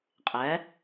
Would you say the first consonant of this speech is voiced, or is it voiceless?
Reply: voiceless